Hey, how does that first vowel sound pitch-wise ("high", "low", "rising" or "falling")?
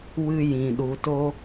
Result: high